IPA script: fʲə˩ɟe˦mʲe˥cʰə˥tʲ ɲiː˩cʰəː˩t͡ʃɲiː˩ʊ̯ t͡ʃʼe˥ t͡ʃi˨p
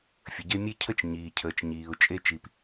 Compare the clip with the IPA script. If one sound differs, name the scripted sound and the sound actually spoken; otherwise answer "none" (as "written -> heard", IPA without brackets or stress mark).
tʲ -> t͡ʃ